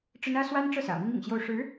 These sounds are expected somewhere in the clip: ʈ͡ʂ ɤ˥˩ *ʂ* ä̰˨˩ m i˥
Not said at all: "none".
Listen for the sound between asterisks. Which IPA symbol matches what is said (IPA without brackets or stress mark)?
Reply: s